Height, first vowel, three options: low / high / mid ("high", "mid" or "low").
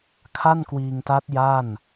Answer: low